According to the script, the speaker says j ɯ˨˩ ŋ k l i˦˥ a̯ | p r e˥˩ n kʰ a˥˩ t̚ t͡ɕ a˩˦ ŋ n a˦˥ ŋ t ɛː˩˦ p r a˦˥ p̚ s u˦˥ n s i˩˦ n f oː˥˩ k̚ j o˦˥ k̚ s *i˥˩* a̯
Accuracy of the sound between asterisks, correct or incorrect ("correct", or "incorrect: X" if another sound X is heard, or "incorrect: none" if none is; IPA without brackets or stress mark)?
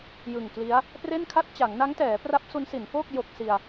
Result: incorrect: i˧